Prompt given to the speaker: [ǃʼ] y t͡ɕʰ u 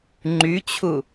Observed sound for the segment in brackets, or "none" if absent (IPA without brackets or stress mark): ŋ͡ǃ